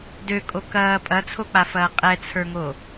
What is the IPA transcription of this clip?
d ø kʼ o k ɐː pʼ ɐ t͡sʰ o k͡p a f ɐː qʼ ɛ t͡sʰ ə˞ ŋ o

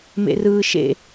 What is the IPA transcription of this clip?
m ḛ r ɯː ʃ ḛ

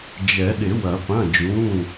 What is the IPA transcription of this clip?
d͡ʒ ɛ˨˩˦ ɗ ɪ˨˩˦ w ɐ˨˩˦ p ɐ̃˩˧˩ d͡ʒ ũ˩˧˩

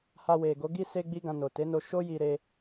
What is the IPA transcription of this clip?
h a˧ w e˨ ɡ o˨˦ ɡ i˦ s e˦ ɡ͡b i˦ ɡ ã˧ n o˨ t e˨˦ n o˧ ʃ o˦ j i˧ ɾ e˧

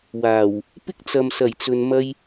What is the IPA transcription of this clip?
w aː˨˩ w | p ɪ˥ k̚ t͡s ɐ˨ m s ɐ˨˩ j t͡s ɵ˨ n m ɐ˧ j

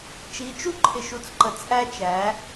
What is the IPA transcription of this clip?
t͡ʃ i˨˦ t͡ʃ u˦ ǃʰ ɪ˨ ʃ u˨ t͡s ǃ ə˨ t͡s ʔ æ˦ t͡ʃ æ˨˦

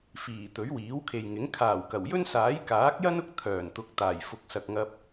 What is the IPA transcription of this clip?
f iː˨˩ t̪ ɵ˨˥ ɥ w iː˨˥ w kʰ e˨ j ŋ ɪ˨˥ ŋ kʰ aː˨˩ w k ɐ˨˩ w j ɵ˥ n s aː˨˥ j k aː˨˥ k̚ j ɐ˥ n ʊ˥ k̚ t̪ʰ œː˨˩ n t̪ ʊ˨˥ k̚ t̪ aː˨˩ j f ʊ˨ k̚ s ɐ˨ k̚ ŋ ɐ˧ p̚

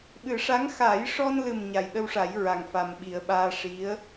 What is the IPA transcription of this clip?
ɓ ɨ˨˩˦ ʂ a˧˥ ŋ x a˨˩˦ j ʂ ɔ˧ n l ɨ˨˩ m ɲ a˨˩ j ɗ ə˧ w ʂ a˨˩˦ j ɹ a˨˩ ŋ f a˨˩ m ɓ i˨˩˦ ə̯ ɓ aː˧ ʂ i˧˥ ə̯

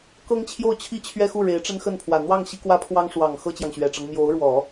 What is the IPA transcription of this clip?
k ɤ˥ ŋ t͡ɕʰ j o˥˩ ʊ̯ t͡ɕʰ i˥ t͡ɕʰ ɥ ɛ˥˧ x u˥˩ ɻ e˧˥ ɪ̯ ʈ͡ʂ ə˥ n x ə˥˩ n pʰ w ä˨˩ n̪ w ɑ˥˩ ŋ ɕ i˥ k w ä˥ pʰ w ɑ˥ ŋ ʂ w ɑ˨˩ ŋ x ɤ˥ t͡ɕ j ɑ˨ ŋ ɕ ɥ ɛ˨˩ ʈ͡ʂ ɤ˦ ŋ m j o˧˥ ʊ̯ ɻ w ɔ˨˩˦

